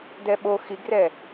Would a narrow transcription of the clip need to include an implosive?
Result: yes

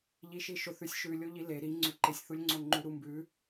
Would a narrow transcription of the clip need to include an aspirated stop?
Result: no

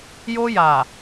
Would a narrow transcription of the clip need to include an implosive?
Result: no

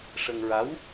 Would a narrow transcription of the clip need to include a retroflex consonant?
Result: yes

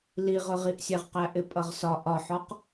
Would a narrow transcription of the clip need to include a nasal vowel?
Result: no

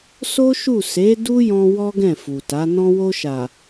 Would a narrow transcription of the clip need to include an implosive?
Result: no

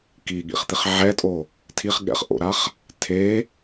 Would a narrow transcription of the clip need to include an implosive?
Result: yes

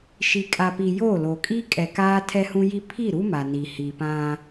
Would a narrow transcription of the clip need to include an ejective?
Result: yes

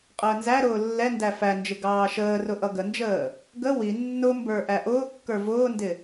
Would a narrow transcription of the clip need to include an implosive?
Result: no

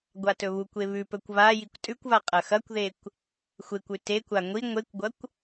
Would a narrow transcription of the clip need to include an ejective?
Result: yes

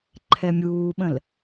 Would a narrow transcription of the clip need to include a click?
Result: yes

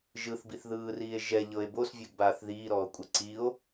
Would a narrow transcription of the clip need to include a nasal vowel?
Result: no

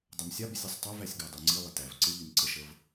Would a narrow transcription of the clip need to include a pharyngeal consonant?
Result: no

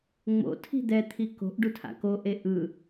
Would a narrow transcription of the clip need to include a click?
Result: no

